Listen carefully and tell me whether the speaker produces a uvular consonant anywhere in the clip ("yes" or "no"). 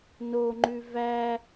no